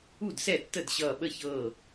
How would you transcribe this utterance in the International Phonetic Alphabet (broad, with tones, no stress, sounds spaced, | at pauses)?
u˥˩ d s ɛ˥˩ tː ə˥˩ d ɕ ʌː˧˩ ɓ ə˥˩ ç ɤː˧˩